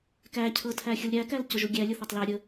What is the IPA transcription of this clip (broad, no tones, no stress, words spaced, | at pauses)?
kæcʰɤtʰæ xʲulɾʲækæl cʊʒuɡʲæ lʲʊθætˤlæ ɾʲə